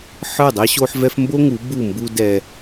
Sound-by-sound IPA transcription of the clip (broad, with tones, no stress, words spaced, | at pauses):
ħə˞˦˨dˤɛ˦ɕo˦ħvɛ˦f mbo˦ŋu˨˦ bu˦˨mbu˦ dɛ˦